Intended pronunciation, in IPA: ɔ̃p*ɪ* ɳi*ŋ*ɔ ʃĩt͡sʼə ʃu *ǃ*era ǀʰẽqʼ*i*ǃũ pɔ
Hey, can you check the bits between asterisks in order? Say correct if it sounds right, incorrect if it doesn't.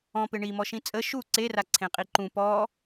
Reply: correct, incorrect: m, incorrect: ǀ, correct

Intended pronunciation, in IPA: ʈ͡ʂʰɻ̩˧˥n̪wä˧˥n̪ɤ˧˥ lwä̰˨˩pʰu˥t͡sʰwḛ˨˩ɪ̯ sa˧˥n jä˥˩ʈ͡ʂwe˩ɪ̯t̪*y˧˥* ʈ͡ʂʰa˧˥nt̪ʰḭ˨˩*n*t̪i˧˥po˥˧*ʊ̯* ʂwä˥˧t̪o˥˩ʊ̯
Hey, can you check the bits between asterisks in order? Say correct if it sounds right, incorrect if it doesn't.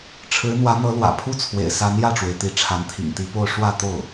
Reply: incorrect: i˧˥, incorrect: ŋ, correct

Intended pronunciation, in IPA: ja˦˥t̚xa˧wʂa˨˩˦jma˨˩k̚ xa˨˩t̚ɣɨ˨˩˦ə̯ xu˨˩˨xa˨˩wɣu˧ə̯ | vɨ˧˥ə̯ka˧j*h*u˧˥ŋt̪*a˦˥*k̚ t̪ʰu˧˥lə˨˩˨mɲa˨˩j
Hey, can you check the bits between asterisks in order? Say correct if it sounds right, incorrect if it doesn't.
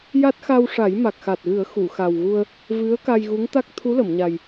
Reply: incorrect: ɣ, correct

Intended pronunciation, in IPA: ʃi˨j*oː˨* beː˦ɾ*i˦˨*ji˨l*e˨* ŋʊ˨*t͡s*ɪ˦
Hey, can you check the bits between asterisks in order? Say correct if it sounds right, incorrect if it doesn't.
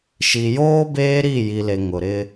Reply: incorrect: oː˦, correct, correct, incorrect: ɾ

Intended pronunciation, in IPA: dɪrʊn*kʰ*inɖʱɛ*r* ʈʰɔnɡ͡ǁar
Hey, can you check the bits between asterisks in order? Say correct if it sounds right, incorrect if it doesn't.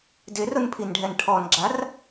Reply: incorrect: pʰ, incorrect: n

